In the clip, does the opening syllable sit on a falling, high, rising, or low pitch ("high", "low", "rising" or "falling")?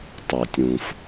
low